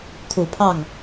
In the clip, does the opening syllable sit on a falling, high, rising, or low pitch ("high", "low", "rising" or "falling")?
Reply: low